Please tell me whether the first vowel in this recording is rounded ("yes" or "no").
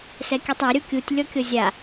no